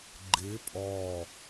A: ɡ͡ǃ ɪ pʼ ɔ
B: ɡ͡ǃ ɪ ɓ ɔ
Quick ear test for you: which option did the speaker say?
A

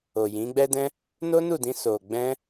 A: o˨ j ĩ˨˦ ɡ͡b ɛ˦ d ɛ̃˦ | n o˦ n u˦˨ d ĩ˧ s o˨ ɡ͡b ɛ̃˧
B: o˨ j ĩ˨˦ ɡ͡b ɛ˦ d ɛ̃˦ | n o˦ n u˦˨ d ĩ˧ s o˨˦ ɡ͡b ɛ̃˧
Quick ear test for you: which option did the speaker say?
A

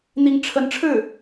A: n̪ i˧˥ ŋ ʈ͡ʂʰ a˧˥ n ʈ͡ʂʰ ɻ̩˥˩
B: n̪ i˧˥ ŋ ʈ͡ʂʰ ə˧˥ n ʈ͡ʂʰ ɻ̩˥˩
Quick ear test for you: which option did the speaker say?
B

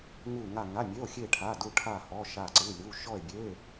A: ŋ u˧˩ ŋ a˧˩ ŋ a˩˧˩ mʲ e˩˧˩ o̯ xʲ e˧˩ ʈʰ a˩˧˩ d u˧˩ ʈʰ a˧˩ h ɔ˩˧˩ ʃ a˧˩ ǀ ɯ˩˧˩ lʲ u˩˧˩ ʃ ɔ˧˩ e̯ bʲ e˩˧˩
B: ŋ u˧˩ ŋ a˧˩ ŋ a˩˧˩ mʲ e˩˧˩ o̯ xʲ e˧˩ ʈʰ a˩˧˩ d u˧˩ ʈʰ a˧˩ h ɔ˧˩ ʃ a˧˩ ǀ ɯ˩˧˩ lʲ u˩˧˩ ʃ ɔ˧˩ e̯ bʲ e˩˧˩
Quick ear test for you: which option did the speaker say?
A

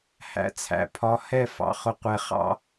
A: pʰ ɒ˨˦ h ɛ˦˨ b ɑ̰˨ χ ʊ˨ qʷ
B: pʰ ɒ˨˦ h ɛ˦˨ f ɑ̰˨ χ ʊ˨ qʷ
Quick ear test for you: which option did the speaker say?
B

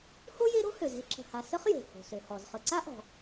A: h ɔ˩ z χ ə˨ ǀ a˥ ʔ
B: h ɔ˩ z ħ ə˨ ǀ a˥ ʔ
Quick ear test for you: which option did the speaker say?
A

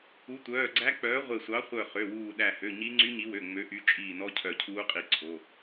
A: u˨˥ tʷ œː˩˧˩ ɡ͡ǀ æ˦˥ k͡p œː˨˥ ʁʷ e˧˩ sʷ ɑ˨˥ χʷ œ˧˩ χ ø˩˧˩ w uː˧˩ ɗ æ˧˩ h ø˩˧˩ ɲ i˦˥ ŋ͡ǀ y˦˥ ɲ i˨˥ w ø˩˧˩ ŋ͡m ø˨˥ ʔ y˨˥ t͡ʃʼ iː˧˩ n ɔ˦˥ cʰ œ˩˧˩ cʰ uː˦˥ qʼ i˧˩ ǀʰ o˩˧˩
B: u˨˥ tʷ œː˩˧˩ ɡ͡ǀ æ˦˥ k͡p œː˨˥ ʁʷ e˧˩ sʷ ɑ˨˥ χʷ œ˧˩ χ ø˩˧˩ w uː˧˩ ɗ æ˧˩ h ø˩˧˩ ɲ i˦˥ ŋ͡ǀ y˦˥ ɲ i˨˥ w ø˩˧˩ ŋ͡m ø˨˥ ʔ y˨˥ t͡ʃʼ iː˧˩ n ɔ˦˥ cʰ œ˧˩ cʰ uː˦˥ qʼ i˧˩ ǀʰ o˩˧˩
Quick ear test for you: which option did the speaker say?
B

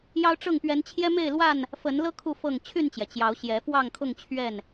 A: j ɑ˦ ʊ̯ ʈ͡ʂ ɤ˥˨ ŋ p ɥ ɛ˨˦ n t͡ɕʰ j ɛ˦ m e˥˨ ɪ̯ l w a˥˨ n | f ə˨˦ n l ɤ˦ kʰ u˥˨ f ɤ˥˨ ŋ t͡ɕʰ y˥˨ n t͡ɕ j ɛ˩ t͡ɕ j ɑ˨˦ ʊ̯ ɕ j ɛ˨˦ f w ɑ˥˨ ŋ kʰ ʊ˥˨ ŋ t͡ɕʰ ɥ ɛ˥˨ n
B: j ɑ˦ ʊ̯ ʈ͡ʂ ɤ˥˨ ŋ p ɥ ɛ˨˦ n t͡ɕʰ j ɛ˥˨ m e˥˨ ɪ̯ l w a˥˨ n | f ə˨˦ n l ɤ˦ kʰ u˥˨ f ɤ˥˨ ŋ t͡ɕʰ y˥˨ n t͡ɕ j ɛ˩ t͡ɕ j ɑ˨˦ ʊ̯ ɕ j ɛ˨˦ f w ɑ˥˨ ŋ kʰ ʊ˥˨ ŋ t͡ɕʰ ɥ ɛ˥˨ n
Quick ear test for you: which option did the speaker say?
A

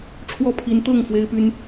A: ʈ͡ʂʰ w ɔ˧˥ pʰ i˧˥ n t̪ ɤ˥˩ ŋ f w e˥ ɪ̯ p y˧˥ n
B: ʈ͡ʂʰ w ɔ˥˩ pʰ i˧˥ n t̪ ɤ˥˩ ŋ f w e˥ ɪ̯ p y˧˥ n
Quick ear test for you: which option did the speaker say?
B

